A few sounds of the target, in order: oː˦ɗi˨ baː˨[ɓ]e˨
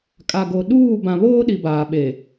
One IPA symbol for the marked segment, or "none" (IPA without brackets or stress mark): ɓ